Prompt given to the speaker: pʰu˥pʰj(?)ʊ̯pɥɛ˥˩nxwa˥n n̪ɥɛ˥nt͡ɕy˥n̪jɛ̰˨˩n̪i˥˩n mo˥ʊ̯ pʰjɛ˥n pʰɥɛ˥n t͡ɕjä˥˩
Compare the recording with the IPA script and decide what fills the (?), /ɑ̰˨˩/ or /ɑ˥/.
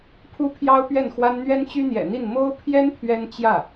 ɑ˥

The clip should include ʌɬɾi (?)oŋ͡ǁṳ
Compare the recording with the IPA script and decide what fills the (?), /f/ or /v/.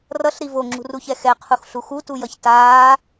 v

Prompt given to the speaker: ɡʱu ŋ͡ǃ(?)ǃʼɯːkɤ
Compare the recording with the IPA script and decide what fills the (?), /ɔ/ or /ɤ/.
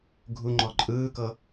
ɔ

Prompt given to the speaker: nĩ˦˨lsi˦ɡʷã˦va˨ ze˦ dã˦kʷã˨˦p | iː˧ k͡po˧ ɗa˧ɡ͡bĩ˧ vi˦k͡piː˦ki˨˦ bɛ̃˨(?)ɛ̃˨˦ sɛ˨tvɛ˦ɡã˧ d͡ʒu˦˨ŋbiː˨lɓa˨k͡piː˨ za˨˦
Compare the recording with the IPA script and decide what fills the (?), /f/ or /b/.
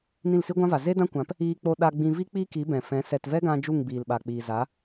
f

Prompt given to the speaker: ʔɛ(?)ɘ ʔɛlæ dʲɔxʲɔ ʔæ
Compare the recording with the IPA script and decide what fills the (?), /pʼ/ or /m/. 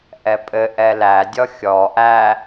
pʼ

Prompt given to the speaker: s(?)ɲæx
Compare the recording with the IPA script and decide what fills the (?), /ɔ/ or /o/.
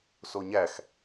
o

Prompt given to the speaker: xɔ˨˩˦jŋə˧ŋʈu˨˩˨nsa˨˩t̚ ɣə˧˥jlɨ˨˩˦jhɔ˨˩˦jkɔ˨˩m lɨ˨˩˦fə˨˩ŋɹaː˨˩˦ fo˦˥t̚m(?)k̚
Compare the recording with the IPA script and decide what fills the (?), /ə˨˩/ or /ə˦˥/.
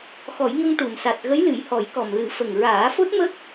ə˦˥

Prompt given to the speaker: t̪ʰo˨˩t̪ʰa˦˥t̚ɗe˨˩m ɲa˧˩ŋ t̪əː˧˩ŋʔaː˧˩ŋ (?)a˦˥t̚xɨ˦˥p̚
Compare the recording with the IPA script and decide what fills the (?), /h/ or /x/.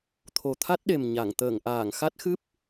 x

